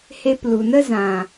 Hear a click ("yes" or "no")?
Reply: no